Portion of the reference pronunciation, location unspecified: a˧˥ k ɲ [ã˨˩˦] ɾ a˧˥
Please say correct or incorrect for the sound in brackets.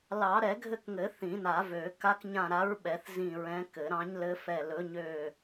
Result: incorrect: ã˦˨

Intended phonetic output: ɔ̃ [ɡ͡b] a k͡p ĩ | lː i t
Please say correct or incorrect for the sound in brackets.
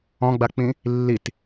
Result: correct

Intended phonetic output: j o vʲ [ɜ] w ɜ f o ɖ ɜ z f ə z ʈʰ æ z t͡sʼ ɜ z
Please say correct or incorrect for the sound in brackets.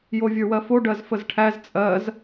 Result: incorrect: ə˞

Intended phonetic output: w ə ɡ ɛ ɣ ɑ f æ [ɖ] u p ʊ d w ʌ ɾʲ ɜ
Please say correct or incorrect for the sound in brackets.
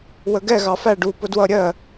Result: correct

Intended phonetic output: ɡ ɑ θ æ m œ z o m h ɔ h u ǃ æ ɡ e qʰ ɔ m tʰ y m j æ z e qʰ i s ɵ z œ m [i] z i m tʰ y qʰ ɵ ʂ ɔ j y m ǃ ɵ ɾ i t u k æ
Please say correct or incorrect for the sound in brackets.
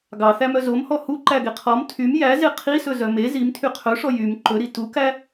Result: incorrect: e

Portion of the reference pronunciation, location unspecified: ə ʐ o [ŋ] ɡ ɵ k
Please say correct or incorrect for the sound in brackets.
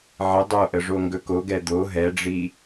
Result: correct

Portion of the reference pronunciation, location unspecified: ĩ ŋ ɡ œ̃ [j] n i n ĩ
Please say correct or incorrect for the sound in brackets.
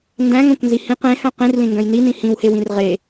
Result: correct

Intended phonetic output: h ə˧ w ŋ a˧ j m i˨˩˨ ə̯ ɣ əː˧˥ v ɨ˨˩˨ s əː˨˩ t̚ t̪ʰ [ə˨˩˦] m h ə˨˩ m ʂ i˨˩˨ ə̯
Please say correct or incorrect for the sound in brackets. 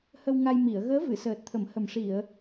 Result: correct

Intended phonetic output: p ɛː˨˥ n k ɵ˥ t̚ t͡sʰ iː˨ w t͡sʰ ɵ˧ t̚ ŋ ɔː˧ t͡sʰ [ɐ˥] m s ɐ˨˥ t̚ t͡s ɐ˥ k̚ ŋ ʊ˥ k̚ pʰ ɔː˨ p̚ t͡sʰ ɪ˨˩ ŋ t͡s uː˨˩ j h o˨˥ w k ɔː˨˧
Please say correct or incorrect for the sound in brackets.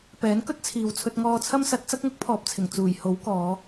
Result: correct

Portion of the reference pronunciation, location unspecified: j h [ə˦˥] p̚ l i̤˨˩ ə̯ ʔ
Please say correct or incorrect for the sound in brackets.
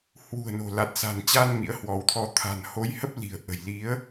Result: correct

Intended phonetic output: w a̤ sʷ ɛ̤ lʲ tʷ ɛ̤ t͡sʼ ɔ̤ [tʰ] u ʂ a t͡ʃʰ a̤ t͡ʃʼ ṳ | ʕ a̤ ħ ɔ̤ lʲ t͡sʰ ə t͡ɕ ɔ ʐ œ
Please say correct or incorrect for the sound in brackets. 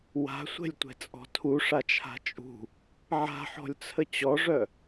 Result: correct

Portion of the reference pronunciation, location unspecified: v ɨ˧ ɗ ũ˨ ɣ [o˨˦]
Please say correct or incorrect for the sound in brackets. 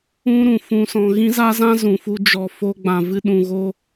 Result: incorrect: o˧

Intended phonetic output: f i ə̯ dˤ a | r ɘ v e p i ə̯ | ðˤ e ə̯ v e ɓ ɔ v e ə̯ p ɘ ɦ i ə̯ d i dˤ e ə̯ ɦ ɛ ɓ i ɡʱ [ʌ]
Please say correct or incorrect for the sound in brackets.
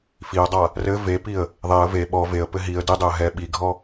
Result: incorrect: ɔ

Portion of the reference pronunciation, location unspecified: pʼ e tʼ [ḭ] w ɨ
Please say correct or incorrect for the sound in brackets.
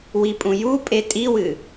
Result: incorrect: i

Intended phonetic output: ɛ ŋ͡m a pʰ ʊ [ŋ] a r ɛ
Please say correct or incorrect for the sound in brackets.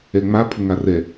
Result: correct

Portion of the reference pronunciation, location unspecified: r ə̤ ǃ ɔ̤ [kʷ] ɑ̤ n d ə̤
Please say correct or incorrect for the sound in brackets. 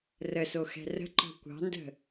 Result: correct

